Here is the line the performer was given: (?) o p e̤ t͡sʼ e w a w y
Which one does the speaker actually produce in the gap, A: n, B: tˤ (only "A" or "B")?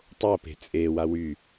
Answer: B